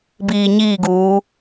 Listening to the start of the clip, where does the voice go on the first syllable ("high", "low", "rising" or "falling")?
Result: low